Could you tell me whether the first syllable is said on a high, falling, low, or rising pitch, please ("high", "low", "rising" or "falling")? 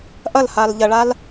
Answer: falling